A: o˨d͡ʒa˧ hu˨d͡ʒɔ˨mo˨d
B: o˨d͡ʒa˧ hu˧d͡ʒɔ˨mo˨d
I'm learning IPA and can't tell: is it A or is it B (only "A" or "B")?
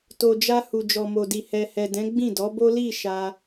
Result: A